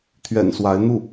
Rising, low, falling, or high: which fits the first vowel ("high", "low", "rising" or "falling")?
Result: low